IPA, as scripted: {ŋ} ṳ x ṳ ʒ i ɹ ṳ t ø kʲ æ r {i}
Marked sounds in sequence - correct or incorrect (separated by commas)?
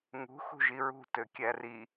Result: correct, correct